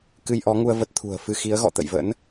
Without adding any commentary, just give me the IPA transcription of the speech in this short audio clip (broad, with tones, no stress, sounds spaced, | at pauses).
k ɨ˧ j ʔ ɔ˨˦ ŋ u˧ ə̯ v ə˦˥ t̚ t̪ʰ ṳ˨˩ ə̯ f ɨ˧ x i˨˦ ə̯ ɣ ɔ̰˧˨ t̪ ə̰˧˨ j v ə̰˧˥ n